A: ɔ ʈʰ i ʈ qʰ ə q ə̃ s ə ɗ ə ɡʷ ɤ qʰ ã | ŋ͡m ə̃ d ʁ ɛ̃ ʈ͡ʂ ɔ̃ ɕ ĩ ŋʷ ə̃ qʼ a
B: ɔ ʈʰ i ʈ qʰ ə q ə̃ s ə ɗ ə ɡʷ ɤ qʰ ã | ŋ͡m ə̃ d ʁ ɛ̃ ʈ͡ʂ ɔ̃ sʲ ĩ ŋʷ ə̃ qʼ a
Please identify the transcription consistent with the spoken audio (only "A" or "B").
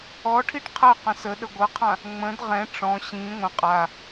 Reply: A